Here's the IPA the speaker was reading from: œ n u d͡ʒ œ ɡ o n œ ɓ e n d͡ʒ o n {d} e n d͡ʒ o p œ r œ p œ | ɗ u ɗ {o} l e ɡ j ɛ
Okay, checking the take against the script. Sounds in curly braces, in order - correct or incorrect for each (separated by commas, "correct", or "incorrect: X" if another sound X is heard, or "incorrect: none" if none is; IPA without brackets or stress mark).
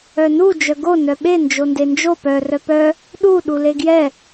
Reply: correct, incorrect: u